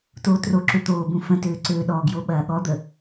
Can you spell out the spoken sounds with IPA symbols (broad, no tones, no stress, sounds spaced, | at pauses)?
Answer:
t oː t r o ǁ ʏ t̪ oː b ũ f ə̃ t øː ǀ øː ɗ ɔ ɡ j o ɓ ɐː ɠ ɔ d̪ ə